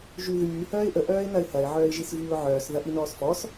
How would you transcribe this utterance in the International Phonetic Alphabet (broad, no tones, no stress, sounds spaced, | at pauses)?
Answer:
ʒ y ð yː h œː ɪ̯ ʔ ə ʔ œː ɪ̯ n ɐ ɪ̯ h ɐ ɪ̯ ʕ œː ɪ̯ ʒ i s v yː ʊ̯ ʕ œː s ð ɐ ʔ i n ɔː s f ɔ s